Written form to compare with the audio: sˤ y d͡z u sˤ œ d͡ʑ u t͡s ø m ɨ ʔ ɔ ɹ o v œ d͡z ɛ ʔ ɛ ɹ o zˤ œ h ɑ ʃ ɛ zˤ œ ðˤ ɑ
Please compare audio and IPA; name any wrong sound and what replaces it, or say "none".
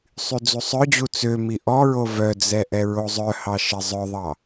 ɨ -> i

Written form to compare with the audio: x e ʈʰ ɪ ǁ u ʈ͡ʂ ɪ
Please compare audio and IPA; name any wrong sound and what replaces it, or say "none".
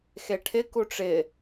ǁ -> k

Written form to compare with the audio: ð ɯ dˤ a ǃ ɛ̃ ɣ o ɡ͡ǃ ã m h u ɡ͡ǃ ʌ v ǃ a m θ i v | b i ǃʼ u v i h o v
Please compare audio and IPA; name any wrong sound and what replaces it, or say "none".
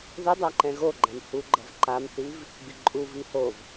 none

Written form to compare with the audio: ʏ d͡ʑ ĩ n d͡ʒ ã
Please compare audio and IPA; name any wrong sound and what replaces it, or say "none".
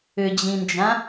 none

